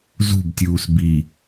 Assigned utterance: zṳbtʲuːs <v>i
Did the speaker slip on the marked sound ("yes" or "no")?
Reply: yes